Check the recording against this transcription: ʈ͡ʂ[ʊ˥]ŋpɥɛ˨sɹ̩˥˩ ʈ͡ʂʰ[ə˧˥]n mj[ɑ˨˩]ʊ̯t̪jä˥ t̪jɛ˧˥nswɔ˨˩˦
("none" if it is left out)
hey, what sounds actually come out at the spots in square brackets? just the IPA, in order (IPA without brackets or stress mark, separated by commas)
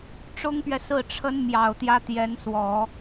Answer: ʊ˥, ə˧˥, ɑ˨˩